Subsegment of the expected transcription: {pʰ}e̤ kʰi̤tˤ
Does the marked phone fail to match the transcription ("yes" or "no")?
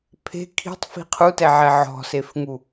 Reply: no